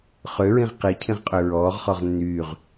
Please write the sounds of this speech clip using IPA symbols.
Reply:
χ ø ɹ ĩ ʁ q i cʰ ĩ ʁ qʼ ø ɹ ɔː ʁ χ ɔ ʁ nː yː ʁ

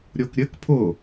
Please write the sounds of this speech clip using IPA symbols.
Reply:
ɾʲ o k ɾʲ ɘ k pʰ ʊ

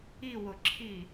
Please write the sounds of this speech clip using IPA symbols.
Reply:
i w ʊ ǁʰ i

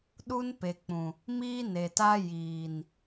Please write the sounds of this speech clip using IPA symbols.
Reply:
ɗ u˦ n p e˨ k͡p ũ˨ | m iː˦ n e˨ t a˦ j iː˨ n

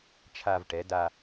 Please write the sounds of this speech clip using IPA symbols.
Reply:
t͡ʃʰ a˧ v ʈ ɛ˩˧ d a˧

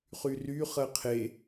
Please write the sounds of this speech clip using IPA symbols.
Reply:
χ y r y χ ɜ qʰ e

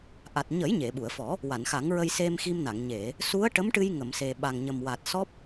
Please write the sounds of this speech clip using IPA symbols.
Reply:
ʔ a˨˩ t̚ ɲ ə˨˩˦ j ɲ e˨˩˨ ɓ u˨˩˨ ə̯ f ɔ˨˩˦ | w a˨˩˨ n x a˨˩˦ ŋ ɹ ə˧ j s e˧ m x i˧ m n a˨˩˨ ŋ ɲ e˨˩˨ | s u˧˥ ə̯ ʈ ə˧˥ m ʈ ɨ˧ j ŋ ə˨˩˨ m s e˨˩ ɓ a˨˩ ŋ ɲ ə˨˩ m w a˨˩ t̚ s ɔ˦˥ p̚

